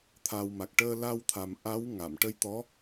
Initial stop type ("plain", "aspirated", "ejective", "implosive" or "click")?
aspirated